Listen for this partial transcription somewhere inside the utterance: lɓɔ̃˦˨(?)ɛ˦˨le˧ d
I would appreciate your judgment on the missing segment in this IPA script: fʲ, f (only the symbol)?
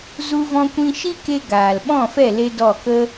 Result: f